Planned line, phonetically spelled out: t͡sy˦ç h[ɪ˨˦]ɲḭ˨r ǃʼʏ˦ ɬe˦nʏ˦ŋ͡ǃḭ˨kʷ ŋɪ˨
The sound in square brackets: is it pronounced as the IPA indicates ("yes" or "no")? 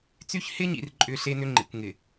no